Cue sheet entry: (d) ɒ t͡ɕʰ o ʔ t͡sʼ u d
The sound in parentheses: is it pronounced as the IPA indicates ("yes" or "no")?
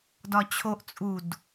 yes